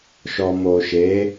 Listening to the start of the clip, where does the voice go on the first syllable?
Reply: low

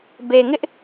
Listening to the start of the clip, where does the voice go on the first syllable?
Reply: low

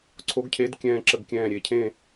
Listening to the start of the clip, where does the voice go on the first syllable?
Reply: rising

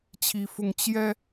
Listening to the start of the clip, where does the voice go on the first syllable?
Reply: high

